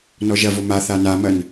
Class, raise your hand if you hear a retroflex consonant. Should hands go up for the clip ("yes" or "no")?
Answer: no